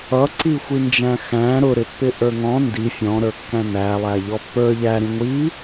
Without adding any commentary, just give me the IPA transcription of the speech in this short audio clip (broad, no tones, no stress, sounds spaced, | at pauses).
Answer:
ʌ ǀ i xʷ i n d͡ʒ æ̃ x æ̃ ɾ ʊ ɾ ɪ pː ɪ ʔ ə˞ ŋ ɔ̃ n d i fʲ ɔ̃ ɾ ə˞ kː æ̃ n æ lˠ æ ʎ ɔ pː ə˞ ʎ æ ɾ ĩ ŋʷ i